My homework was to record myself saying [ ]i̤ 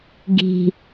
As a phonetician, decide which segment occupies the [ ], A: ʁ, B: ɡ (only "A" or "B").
B